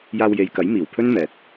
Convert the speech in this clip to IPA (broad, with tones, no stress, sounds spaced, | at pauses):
j aː˧ w j e˨ j k ɐ˨˥ j m iː˨˩ w pʰ ɵ˥ n m ɛː˨ t̚